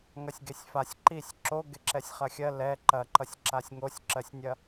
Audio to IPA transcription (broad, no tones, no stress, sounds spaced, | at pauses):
ŋ ɐ sʲ ɡ e sʲ f a sʲ ǃ i sʲ ǁ o ɡ e ǁ ɛ sʲ χ ɐ xʲ ɜ l ɛ ǃ ɐ ǃ ʌ sʲ ǁ a sʲ ŋ o sʲ ǁ ɜ sʲ nʲ ɐ